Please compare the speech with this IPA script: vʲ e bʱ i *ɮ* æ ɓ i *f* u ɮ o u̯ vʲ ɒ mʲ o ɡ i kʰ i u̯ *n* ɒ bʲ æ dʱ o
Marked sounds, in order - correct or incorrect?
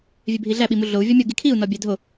correct, incorrect, correct

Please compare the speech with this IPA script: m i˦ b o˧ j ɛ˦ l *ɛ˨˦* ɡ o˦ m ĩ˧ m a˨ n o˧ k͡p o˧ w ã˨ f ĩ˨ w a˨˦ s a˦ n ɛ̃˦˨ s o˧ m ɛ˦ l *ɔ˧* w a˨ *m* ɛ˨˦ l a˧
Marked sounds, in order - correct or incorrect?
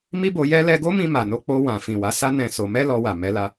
incorrect, correct, correct

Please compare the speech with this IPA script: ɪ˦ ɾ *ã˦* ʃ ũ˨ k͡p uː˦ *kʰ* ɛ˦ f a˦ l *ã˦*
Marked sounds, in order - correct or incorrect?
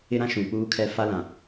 correct, correct, incorrect

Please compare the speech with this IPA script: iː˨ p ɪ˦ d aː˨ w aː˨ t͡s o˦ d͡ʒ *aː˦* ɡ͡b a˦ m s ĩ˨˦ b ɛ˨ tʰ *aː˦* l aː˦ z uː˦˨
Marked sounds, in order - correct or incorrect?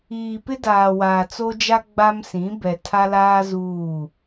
incorrect, incorrect

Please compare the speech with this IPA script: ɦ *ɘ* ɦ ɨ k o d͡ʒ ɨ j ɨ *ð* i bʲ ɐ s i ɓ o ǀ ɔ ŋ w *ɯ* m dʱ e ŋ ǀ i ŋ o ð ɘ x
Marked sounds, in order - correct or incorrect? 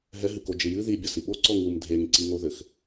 incorrect, correct, incorrect

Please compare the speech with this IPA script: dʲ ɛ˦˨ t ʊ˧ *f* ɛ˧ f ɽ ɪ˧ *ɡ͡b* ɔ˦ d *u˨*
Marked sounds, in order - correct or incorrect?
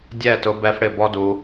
incorrect, incorrect, incorrect

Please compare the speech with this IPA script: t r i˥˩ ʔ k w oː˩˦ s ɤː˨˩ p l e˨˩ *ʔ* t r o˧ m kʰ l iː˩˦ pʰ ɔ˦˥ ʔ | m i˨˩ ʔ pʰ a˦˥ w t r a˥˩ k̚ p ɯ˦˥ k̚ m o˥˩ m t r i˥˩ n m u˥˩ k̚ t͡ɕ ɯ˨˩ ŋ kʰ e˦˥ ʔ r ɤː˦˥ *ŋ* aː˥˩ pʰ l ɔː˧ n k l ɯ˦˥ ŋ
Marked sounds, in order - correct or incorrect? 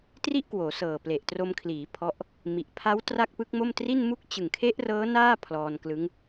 correct, incorrect

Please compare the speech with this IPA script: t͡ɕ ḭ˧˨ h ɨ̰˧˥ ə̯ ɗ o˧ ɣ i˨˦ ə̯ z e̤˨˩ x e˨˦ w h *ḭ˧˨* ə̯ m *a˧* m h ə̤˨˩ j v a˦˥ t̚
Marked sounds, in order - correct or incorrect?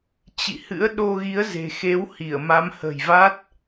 incorrect, incorrect

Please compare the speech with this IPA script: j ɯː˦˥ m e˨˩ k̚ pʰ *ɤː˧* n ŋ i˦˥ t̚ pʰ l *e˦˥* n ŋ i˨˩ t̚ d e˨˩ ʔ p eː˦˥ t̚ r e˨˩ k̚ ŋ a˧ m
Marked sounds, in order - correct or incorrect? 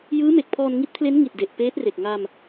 incorrect, correct

